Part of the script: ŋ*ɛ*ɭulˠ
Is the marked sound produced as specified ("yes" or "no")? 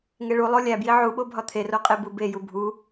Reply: no